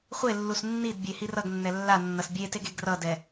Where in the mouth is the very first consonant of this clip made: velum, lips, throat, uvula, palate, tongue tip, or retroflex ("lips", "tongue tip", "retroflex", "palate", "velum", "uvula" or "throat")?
uvula